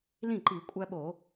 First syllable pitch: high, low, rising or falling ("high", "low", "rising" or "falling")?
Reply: falling